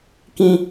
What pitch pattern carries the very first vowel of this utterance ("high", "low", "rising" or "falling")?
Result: high